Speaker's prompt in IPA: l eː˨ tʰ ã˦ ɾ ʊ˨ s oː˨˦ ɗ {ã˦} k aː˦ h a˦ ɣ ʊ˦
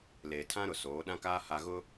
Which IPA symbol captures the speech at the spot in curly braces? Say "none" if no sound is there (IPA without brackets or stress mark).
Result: ã˦